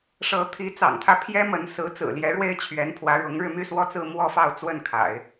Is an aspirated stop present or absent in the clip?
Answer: present